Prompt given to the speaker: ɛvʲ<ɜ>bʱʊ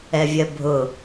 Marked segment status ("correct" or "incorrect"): correct